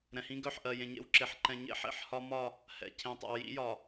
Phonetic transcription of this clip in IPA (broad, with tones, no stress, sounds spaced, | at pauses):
ɾ ɛ̃˨ h ĩ˦ ɡ œ˦˨ ħ ʔ ɜ˨ j ẽ˨ ɲ ḛ˦˨ w ǁ e˨ ħ ǃ ɛ̃˨ ɲ ḛ˦ ħ ḛ˨ ħ h ɒ˦ m ɒ˦˨ | h ɛ̰˨ cʰ ẽ˨ tˤ ɛ̰˨ w j ḭ˦ j ɒ˨